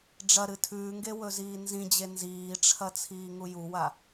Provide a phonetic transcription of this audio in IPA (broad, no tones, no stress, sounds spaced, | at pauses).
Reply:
ɖ͡ʐ ɐ ɾ ɨ tʰ ʉː ŋ ɡ e w ɵ z iː n z ĩ d͡ʑ e n z iː ʈ͡ʂʰ ɐ t͡sʰ iː ŋ u j u w a